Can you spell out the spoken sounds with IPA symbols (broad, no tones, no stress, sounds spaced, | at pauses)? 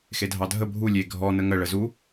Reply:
x e dʱ ɑ dʱ ə bʱ u lʲ e ɡʱ ɔ n ə ŋ ə ɭ ə z u